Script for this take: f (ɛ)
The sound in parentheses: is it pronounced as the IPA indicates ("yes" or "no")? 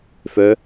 no